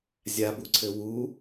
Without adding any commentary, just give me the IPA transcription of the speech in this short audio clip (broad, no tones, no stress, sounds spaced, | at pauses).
zʲ a b u ǀʰ ɘ w u